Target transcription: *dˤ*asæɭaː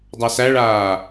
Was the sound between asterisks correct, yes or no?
yes